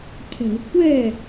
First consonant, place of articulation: palatal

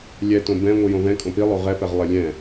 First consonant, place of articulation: alveolar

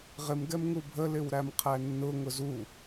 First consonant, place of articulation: uvular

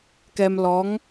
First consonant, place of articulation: velar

